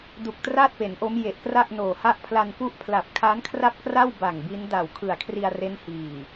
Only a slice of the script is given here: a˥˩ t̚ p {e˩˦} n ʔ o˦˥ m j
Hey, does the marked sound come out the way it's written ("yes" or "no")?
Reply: yes